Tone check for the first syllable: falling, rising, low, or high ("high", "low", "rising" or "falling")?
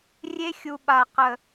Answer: high